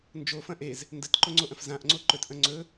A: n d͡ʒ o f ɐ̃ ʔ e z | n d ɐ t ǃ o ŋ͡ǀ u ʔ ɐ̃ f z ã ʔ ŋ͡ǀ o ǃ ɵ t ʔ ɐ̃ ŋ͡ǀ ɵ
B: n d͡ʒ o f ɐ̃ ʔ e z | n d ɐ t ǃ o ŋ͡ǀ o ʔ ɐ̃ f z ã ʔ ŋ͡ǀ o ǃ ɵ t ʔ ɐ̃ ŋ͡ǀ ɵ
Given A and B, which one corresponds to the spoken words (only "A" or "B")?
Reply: B